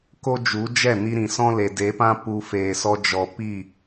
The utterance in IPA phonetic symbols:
ko˦d͡ʒu˨˦d͡ʒɛ˦˨ ni˧ɾĩ˨ sɔ̃˦le˨de˨˦pã˦ pu˧ feː˨sɔ˧d͡ʒɔ˨ pi˦˨

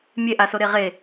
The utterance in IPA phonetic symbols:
mʲeʔa soɾeʁe

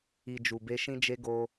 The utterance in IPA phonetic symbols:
i˨ d͡ʒu˨be˧ʃĩ˦d͡ʒe˦ ɡo˦

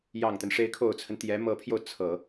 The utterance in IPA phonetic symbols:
jɑ˨˩ŋt̪ə˦n ʂe˧˥ɪ̯kʰo˨˩ʊ̯t͡sʰə˦n t̪jɛ˧˥mɤ˧˥pʰjo˧ʊ̯ t͡sʰɤ˨˩˦

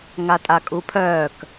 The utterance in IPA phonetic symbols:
ŋatʼakʼupʰœːk

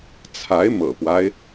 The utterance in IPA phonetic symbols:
t͡sʰa˧˥ɪ̯mɤ̰˨˩pwa˦ɪ̯

